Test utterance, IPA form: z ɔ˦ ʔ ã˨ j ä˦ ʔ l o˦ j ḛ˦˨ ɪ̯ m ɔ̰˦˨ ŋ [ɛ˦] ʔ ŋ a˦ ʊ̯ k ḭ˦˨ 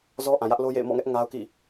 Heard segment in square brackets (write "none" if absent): ɛ˦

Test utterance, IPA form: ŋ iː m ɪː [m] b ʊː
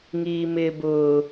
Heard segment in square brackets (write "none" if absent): none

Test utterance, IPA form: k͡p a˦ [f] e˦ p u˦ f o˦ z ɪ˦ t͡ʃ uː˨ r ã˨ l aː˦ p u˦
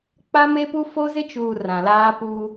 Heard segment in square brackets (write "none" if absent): m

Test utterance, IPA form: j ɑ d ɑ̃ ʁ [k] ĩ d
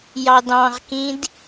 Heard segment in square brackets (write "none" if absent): k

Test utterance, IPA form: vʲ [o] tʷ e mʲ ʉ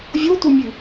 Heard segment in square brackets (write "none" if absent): o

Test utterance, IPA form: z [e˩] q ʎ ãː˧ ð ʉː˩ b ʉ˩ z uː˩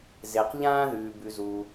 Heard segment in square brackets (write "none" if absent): e˩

